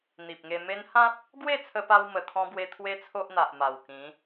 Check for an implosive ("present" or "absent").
absent